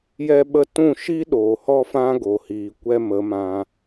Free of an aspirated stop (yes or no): yes